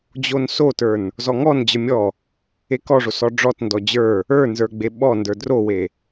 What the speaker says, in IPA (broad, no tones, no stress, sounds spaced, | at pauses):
d͡ʑ o n s o t ə˞ n | z ɔ ŋ ɔ n d͡ʑ ə˞ mʲ ɔ | e k ɔ ʐ o s ɔ ɖ͡ʐ ɔ t n d ɔ d͡ʑ ə˞ | ə˞ n z ə˞ ɡ͡b e ɓ ɔ n d ə˞ d r o w e